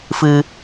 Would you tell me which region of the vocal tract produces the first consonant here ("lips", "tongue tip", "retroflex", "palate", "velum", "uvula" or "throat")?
lips